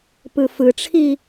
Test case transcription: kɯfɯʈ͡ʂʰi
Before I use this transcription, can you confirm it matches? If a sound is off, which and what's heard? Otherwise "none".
k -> p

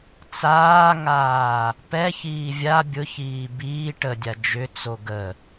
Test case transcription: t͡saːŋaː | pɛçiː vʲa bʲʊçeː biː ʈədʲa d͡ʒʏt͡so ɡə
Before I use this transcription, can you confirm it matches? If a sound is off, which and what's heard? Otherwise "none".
eː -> iː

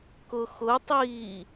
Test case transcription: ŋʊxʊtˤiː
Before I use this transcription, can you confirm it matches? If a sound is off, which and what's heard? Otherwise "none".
ŋ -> k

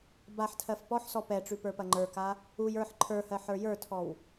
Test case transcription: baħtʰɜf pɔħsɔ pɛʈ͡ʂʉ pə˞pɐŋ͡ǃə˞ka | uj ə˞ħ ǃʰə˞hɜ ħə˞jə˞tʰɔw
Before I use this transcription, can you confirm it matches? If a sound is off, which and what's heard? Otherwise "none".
none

